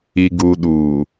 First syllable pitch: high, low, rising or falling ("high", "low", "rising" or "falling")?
low